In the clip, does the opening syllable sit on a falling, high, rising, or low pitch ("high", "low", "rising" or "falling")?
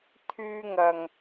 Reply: high